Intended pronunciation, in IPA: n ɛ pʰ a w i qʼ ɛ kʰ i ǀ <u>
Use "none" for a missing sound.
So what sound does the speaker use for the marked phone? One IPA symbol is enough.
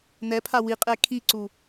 u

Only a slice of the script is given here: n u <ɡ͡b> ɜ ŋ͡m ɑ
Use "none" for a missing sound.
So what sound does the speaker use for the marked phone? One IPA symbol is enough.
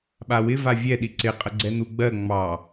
ɡ͡b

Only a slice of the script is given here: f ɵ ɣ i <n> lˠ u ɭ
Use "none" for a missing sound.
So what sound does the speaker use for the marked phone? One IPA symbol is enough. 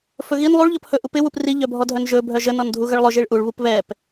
n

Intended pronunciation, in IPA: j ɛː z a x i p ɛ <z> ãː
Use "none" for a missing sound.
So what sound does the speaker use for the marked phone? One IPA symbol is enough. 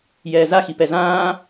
z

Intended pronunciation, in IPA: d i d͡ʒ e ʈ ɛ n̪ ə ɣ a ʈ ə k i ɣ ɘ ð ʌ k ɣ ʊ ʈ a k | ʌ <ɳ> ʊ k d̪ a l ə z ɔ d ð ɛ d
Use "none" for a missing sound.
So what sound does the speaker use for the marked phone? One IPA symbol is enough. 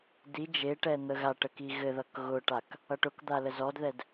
ʈ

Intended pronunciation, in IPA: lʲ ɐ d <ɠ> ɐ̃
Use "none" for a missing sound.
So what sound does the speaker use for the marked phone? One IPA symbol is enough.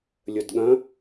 ɠ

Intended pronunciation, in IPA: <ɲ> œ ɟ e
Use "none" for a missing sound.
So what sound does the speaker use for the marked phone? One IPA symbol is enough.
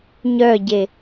ɲ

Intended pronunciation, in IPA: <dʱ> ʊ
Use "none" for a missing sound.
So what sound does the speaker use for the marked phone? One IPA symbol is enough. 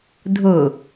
dʱ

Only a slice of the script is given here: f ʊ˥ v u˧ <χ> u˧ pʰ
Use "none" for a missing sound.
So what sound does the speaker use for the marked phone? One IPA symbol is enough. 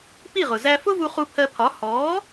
χ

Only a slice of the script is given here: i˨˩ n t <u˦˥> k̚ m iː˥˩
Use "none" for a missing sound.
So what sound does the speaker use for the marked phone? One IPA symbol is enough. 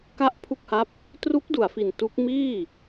u˦˥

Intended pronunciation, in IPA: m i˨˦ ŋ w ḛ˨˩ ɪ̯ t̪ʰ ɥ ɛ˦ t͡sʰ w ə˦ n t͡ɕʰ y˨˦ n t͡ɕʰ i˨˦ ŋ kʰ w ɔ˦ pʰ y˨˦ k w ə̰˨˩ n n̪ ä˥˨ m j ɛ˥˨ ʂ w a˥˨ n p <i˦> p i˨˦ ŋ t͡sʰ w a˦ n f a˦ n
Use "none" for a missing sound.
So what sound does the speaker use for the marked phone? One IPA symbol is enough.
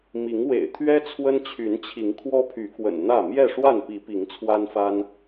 i˨˦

